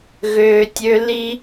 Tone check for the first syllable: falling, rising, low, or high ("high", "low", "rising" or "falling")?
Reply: low